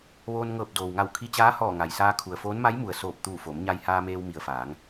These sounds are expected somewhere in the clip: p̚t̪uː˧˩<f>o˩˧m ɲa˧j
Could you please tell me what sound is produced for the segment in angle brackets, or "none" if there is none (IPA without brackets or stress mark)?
f